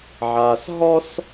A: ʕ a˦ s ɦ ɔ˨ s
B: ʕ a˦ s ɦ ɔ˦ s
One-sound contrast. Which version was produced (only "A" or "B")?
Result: B